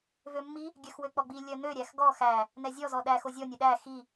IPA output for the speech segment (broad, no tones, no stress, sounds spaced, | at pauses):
v ø mː i | ɡʲ œ x w ø k͡p ɔ ɡ͡b i lʲ œ n̪ ø ɾʲ æ x ɡ ɔ x æ | n̪ ɛ zʲ ɔ z ɔ ɗ æ x o zʲ ɔ nʲ ɛ ɗ æ x i